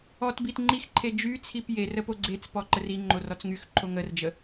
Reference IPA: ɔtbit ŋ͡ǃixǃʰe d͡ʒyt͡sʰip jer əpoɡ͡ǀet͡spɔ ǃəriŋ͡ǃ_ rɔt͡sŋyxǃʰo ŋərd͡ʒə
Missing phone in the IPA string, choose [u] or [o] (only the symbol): o